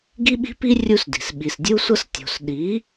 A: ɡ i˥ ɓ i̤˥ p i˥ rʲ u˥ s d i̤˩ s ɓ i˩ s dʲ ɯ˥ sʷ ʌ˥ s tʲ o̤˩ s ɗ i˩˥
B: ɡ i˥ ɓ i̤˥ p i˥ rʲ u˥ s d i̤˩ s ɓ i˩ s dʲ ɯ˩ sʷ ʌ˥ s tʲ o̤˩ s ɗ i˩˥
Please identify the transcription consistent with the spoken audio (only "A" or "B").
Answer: A